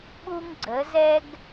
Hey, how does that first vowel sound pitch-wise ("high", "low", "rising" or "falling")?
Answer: high